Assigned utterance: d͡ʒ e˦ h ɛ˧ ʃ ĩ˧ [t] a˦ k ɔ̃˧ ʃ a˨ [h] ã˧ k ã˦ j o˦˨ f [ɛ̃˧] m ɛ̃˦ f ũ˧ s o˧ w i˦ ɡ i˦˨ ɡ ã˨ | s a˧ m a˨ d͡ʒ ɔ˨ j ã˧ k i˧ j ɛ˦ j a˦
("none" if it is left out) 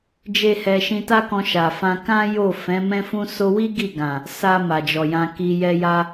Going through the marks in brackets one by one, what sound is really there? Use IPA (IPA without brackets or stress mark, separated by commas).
t, f, ɛ̃˨˦